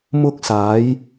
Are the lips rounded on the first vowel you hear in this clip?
yes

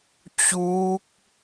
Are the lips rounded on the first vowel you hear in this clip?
yes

